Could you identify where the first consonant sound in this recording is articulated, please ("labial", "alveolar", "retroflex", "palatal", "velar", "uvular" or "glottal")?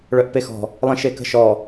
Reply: retroflex